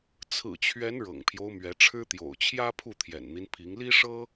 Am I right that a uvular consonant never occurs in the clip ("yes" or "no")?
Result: yes